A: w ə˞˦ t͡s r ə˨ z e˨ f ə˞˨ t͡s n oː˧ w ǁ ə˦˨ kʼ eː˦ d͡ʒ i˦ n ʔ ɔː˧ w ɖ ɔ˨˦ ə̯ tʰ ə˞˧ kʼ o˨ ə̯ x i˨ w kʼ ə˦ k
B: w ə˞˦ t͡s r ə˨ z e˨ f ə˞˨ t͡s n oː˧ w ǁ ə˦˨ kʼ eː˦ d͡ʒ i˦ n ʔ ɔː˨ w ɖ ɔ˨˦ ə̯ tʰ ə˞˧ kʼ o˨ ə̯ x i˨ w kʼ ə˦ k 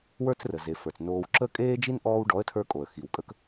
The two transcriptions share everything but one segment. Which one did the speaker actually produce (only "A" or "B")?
A